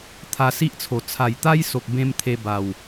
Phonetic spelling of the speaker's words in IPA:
t̪ʰ a˧ s i˦ ʔ t͡sʰ o˨˩ t͡sʰ a˨˩ j t̪ a˦ j s o˨ k̚ b ẽ˦ m t̪ʰ e˧ b a˨˩ w

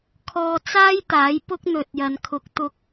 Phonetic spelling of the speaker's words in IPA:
kʰ ɔː˧ t͡s aː˥ j t̪ aː˨˥ j p ʊ˥ k̚ n̪ ɵ˨ t̚ j ɐ˨ n kʰ ʊ˨ k̚ t̪ ʊ˧ k̚

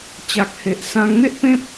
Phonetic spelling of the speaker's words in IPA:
t͡ɕ a˨ k̚ h e˨ ʔ s ã˧ ŋ n̪ e˦ ʔ p ẽ˦ p̚

